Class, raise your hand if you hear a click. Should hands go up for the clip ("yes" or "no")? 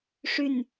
no